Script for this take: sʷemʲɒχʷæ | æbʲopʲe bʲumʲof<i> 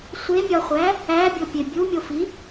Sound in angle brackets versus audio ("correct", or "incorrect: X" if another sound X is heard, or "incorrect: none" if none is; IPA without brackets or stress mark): correct